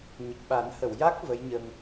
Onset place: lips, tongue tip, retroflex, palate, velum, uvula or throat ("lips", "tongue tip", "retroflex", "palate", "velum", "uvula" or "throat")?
palate